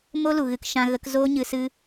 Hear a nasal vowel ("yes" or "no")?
yes